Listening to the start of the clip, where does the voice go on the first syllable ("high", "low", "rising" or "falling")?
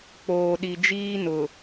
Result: low